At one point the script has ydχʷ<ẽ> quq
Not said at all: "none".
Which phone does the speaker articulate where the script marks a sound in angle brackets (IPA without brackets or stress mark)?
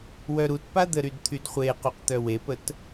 e